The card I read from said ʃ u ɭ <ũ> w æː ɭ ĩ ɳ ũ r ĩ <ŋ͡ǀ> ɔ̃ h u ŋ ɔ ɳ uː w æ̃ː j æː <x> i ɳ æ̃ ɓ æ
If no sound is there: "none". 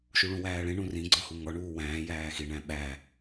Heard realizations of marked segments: ũ, ɡ͡ǀ, x

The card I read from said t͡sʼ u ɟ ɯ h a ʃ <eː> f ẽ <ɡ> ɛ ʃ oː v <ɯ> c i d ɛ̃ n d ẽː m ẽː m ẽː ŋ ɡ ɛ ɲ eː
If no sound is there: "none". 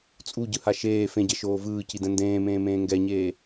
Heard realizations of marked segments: eː, ɟ, ɯː

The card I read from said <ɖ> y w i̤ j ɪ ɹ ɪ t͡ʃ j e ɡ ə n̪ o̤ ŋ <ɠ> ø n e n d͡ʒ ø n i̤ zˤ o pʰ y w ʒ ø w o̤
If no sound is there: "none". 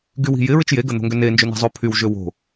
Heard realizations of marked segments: ɡ, ɡ

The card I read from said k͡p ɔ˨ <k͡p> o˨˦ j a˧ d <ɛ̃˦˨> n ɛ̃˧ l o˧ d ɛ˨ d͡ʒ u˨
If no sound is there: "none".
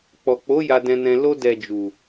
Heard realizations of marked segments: k͡p, ɛ̃˧

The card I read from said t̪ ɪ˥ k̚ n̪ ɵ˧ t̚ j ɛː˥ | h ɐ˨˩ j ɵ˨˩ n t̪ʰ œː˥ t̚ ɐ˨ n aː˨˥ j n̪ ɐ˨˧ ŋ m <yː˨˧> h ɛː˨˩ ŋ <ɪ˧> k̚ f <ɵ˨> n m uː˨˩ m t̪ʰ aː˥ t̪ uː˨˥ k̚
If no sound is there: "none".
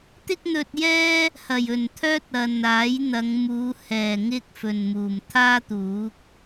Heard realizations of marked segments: uː˨˧, ɪ˧, ɵ˨

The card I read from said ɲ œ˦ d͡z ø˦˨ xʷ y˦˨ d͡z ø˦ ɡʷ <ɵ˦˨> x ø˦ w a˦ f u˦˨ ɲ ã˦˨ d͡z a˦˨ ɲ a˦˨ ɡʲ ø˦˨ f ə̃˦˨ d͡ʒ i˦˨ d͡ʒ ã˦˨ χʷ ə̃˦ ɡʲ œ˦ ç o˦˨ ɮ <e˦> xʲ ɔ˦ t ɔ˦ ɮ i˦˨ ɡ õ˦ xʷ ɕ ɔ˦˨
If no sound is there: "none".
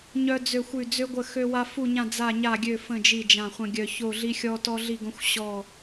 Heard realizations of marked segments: ə˦˨, i˦

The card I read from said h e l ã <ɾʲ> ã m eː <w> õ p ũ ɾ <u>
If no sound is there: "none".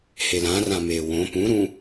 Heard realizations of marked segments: r, w, ũ

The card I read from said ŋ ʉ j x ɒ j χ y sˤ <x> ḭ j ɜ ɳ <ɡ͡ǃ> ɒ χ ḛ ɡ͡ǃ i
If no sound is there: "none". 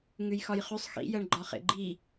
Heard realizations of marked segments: x, ɡ͡ǃ

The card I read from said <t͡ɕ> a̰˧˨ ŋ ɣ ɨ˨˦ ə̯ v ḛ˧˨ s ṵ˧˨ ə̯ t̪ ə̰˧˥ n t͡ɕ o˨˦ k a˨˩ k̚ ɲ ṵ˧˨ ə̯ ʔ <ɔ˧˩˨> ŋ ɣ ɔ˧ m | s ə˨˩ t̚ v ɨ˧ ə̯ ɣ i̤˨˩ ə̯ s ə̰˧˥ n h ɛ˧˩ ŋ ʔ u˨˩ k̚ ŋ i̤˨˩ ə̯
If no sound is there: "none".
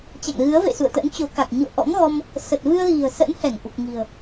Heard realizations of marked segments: t͡ɕ, ɔ̰˧˥

